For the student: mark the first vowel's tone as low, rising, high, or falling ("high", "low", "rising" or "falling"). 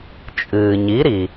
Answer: low